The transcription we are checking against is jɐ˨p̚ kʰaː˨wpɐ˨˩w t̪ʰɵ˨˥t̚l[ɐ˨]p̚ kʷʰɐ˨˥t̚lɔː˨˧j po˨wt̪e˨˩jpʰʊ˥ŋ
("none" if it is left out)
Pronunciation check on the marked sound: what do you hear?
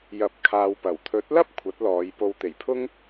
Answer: ɐ˥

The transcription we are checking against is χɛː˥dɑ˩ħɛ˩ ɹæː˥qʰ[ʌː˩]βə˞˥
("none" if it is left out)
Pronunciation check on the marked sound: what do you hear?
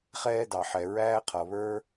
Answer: ʌ˩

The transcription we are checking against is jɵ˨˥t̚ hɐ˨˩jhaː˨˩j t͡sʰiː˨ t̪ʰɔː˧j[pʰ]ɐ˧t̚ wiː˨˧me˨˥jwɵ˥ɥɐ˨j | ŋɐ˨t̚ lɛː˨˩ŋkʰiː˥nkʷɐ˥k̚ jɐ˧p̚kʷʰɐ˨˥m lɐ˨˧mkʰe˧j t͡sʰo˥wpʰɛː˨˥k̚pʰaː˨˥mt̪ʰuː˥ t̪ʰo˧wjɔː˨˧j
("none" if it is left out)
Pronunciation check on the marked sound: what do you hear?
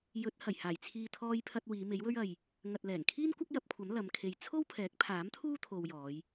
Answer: pʰ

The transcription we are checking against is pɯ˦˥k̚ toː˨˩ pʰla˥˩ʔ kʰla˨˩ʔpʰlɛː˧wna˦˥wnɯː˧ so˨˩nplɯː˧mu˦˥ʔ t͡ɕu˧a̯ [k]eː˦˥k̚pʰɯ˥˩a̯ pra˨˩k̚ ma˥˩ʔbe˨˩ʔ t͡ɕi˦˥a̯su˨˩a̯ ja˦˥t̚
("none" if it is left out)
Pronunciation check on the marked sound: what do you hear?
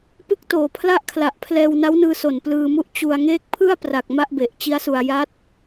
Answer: ŋ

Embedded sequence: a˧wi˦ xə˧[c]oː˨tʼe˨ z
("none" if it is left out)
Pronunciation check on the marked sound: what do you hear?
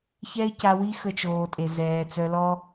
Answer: t͡ʃ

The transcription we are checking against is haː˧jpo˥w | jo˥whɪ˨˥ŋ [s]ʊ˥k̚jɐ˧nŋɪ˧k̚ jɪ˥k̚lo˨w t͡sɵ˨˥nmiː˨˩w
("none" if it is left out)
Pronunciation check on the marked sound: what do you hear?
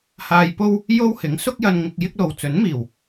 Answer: s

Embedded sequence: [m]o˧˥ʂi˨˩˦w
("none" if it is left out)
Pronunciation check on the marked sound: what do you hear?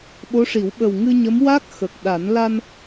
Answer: ɓ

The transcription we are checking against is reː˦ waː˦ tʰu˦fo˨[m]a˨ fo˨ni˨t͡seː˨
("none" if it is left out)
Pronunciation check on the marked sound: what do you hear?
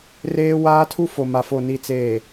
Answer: m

